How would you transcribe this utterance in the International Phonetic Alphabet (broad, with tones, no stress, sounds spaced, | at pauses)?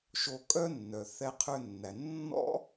ʃ o˧ kʼ œ˥ nː œ˩ θ ɛ˧ qʰ ø˧ nː æ˩ nː ɔ̰˥